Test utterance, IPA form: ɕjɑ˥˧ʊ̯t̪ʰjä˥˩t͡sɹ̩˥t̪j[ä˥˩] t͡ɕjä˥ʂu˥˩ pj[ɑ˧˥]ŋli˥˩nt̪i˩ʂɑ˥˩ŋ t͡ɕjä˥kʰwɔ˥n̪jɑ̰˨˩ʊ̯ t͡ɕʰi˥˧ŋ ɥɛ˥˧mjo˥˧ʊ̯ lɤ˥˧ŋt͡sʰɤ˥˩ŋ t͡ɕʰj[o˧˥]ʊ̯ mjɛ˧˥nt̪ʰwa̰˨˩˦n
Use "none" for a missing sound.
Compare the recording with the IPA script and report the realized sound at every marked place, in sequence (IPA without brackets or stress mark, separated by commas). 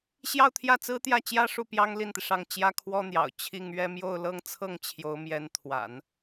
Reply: ä˥˩, ɑ˥, o˧˥